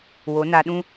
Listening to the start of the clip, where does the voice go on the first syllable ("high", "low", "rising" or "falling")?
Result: rising